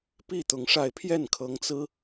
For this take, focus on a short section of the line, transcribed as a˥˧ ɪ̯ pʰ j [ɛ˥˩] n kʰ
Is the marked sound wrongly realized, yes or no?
no